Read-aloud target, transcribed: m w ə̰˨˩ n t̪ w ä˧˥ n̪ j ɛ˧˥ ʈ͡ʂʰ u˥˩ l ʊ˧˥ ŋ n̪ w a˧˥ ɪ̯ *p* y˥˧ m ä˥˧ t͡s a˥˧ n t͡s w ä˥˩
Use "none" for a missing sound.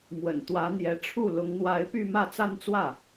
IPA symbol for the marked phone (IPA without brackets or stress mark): p